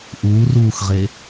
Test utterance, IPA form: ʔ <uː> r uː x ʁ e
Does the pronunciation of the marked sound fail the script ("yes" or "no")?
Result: no